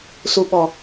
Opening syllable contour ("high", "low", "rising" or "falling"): high